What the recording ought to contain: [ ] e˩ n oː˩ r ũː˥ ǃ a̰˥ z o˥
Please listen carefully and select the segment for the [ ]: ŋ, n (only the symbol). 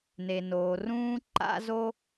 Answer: n